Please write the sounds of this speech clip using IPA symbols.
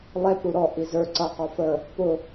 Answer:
lˠɛp ɾuɾɔ ʔizə˞ ǀʌ qɔfə | pʊ

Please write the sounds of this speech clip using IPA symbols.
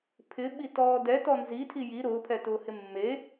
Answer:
pʰɪɓitɔː dɛtɔ nzitʰi ji ɾʊːpʰɛtʊːhɪ mːe

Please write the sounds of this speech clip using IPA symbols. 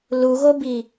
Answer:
luɣobi

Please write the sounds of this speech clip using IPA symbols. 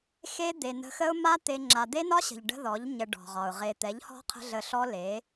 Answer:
xe˦d̪e˨nə̤˧xə˦ʊ̯ ma˦ t̪e˦ŋ͡ǁa˧ d̪e˦nɒ˦ɕə̤˨ʎ ɖə̤˦ðɔ˨˦ʎ ɲə˧ɖɔ̤˨ʁɒ˨ʊ̯ ʁe˨t̪ɛ˨˦ʎhɔ̤˦ qʰə̤˦ ɮə˧ɬɔ˦ le˨˦

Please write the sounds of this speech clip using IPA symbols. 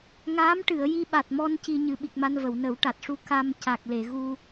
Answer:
ŋaː˧˥m ʈɨ˨˩˨ə̯ ji˧ɓa˨˩t̚mɔ˧n ci˧ ɲɨ˨˩ɓi˨˩k̚ma˧n və˨˩˨wnə˨˩˦wʈa˨˩t̚ ʂu˧ ka˧m ca˨˩k̚le˨˩˨ɣu˧

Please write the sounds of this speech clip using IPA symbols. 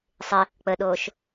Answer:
sˤɪ | k͡pəɗoːʃ

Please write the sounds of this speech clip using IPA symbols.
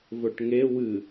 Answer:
vɵʈŋe wɨ

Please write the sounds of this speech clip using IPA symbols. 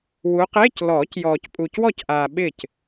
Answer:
wu˨˦qeː˧˥˧clɔː˨˩˦cjɔː˨c pʼuː˨cwɔ˥˩cʔaː˨ ɓɪ˥˩c

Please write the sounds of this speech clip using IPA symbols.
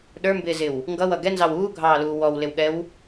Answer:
ɗə˞mbɪːzɪw | ŋɡʌwʌ ɡɛnzɑw uːɡʱɑːluː wɔwlɪwɠɛw

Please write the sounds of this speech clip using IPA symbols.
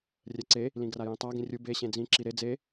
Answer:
rʲɛǀe | lĩɡrajĩtˤa ɡĩrʲu be ɕẽd͡zĩ ǁiɾe d͡ze

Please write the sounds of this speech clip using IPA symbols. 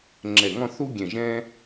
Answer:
ŋ͡ǁɛ˧˩ŋɔ̃˥˧ θu˥ɡʲɛ̃˧˩ ʒɛ̃˧

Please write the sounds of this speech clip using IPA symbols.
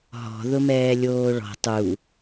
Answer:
ɦɔ̤ ðʊmɛːlʲoːɭɔ̤ tˤu

